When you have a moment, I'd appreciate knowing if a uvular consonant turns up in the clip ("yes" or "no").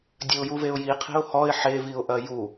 yes